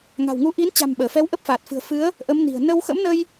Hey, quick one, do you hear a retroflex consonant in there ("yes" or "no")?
no